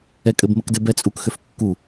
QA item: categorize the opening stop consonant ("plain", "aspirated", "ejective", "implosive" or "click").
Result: ejective